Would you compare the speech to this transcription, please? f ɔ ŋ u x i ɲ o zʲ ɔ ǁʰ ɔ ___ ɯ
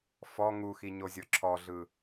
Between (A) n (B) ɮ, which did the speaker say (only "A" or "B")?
B